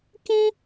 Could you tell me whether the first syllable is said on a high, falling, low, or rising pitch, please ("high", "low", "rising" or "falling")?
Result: high